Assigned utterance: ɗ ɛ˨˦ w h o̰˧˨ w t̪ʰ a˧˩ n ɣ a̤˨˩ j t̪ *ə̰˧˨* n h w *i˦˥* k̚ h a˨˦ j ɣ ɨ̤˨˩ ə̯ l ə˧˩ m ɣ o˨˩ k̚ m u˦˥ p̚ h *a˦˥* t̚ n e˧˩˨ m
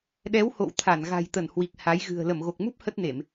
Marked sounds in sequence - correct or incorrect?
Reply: incorrect, incorrect, incorrect

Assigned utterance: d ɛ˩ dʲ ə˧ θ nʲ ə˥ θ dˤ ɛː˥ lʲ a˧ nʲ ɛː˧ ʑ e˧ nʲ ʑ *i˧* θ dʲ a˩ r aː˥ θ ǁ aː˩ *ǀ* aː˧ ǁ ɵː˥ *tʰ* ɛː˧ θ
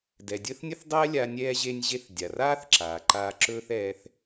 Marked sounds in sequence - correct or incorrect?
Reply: incorrect, incorrect, incorrect

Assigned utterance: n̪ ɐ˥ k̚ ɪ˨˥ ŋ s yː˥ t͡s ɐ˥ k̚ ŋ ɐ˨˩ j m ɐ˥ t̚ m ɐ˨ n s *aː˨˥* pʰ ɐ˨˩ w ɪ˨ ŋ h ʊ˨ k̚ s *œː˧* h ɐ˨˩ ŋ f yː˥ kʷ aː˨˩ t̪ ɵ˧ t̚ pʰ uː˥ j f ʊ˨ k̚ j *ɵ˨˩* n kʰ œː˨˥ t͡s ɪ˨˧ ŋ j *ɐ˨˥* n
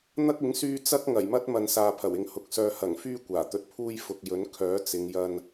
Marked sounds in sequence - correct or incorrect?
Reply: incorrect, correct, incorrect, incorrect

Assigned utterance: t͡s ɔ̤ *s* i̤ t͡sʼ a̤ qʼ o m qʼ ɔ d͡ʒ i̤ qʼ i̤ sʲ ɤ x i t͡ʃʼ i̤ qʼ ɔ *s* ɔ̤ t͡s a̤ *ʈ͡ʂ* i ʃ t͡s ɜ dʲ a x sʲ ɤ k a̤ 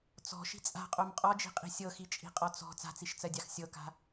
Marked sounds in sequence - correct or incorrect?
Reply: incorrect, incorrect, incorrect

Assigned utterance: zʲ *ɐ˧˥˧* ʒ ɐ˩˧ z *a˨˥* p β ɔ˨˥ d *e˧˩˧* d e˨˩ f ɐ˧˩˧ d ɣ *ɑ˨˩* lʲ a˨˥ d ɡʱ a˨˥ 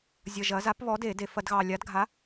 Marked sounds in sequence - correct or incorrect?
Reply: incorrect, correct, correct, correct

